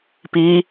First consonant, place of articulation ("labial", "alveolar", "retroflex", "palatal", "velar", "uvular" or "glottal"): labial